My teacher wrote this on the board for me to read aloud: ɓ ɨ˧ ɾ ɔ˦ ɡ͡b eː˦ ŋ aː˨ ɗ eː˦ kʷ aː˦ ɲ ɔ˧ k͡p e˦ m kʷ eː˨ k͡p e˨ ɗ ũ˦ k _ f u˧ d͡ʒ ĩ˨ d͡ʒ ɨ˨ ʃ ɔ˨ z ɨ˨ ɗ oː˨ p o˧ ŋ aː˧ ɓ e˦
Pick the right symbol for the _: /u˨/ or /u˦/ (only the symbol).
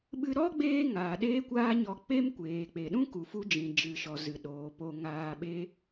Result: u˨